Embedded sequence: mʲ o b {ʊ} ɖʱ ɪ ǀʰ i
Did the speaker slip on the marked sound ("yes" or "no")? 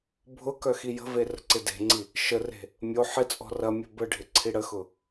yes